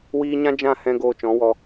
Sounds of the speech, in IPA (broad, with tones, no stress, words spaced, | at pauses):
wiː˧ɲã˦ d͡ʒã˦˨hɛ̃˧ ɡoː˧t͡ʃɔ̃˨˦wɔ˧